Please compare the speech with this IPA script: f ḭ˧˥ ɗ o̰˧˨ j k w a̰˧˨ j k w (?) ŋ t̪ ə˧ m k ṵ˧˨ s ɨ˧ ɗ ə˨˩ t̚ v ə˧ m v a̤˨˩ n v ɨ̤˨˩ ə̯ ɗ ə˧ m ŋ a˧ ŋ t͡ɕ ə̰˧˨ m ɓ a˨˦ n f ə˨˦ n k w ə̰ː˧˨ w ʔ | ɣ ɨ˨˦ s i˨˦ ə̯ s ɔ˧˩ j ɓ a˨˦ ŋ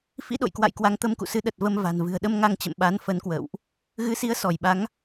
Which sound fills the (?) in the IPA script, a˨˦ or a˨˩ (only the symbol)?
a˨˦